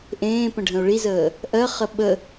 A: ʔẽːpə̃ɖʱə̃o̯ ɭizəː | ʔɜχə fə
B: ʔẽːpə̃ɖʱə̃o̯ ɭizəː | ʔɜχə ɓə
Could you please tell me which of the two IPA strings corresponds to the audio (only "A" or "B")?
B